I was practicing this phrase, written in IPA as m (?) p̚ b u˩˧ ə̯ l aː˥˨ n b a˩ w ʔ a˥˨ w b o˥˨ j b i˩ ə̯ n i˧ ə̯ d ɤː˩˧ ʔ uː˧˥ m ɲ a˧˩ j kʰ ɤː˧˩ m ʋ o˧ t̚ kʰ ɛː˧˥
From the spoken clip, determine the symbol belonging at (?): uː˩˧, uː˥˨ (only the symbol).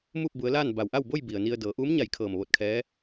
uː˥˨